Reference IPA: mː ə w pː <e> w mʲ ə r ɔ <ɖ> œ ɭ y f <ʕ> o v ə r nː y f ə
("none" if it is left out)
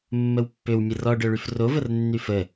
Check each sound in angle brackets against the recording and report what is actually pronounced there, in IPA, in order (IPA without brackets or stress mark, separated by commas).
ø, ɖ, r